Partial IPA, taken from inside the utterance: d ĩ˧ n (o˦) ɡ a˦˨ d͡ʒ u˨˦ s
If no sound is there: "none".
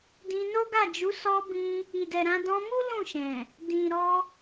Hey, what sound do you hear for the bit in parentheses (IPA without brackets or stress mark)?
o˦